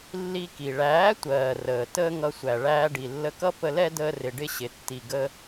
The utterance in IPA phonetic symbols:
lː i˧ k i˨ ɭ æː˨˦ tʷ ɜː˨ r əː˨ t əː˦ ŋ ʌ˧ sʷ æ˨ ɭ æː˧ ɖ i˨ lː ə˧ k ʌ˦ p ə˧ l ɛ˦ d əː˧ r ɪ˨ ɖ ɪ˧ ɕ ɪ˨ tː i˨ ɡ ə˧

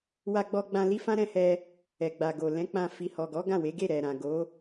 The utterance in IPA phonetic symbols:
w a˧ ɡ͡b ɔ˧ ɡ͡b ã˧ l i˦ f ã˦ ɾ ɛ̃˦˨ h ɛ˧ | ɛ˨ ɡ͡b a˨ ɡ o˨ l ɛ̃˨˦ k͡p ã˧ f i˨ h ɔ˨ ɡ ɔ˨˦ ɡ ã˦˨ w e˨˦ ɡ e˦˨ ɾ ɛ˨ ɾ ã˨ ɡ o˨˦

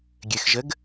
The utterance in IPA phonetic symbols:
ɡʲ ɘ x ʒ ə ɡ

